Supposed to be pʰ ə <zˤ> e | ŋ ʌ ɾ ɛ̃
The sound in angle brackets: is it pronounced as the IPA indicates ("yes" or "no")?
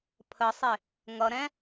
no